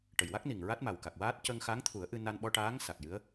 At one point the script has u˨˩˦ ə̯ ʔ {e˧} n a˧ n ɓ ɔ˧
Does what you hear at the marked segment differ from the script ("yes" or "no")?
yes